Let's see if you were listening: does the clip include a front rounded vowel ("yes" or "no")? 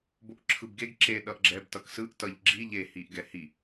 no